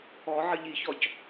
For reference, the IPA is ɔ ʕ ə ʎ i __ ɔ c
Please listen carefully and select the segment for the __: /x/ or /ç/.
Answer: ç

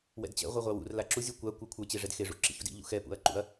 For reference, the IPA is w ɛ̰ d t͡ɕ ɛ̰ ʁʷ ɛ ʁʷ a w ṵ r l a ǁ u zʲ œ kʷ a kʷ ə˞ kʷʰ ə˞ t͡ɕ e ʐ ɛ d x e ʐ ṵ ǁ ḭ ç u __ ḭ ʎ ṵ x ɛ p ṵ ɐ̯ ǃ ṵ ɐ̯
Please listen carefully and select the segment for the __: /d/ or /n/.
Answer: d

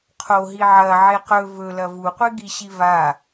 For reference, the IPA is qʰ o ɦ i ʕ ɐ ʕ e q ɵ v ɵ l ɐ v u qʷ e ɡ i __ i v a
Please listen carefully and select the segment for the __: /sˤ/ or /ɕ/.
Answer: ɕ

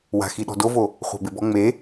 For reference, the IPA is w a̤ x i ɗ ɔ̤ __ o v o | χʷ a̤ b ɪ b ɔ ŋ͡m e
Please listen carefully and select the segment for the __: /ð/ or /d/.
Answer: d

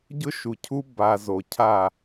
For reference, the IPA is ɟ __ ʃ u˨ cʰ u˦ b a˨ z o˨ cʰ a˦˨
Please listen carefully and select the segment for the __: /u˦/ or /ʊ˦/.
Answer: ʊ˦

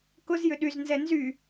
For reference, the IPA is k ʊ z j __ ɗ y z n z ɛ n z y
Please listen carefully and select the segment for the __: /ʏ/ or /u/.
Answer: ʏ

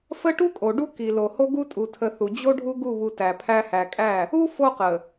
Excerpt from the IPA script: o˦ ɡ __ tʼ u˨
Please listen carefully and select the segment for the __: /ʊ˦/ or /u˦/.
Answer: u˦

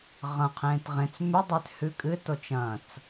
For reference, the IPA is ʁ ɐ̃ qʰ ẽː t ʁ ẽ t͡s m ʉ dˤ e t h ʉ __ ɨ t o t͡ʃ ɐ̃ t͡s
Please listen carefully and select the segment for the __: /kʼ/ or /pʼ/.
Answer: kʼ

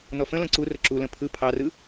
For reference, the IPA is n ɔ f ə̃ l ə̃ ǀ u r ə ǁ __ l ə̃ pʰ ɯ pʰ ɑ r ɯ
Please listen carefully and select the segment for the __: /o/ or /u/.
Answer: u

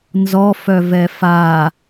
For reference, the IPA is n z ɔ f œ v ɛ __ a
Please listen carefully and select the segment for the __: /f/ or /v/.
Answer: f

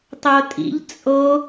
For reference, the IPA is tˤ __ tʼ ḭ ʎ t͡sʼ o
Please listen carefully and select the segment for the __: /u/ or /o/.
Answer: o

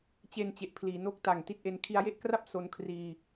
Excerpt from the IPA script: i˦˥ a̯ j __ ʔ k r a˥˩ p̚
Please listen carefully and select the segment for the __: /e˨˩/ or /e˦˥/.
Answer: e˦˥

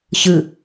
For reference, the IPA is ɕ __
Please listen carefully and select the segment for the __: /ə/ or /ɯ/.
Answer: ɯ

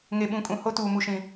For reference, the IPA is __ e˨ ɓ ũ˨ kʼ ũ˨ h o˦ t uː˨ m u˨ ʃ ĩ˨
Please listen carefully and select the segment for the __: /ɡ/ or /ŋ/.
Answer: ŋ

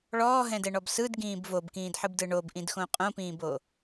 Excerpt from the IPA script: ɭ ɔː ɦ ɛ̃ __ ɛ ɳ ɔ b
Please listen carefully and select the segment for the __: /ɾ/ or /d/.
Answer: d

